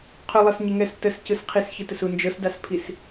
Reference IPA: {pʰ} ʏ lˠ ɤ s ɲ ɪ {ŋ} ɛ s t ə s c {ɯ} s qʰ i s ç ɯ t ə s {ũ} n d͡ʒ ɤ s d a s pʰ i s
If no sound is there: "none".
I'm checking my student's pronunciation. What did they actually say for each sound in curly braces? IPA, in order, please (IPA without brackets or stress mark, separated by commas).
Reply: qʰ, ŋ, ɯ, u